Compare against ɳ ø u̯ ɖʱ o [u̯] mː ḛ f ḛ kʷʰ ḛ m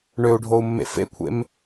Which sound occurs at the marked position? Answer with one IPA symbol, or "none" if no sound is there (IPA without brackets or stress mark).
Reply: u̯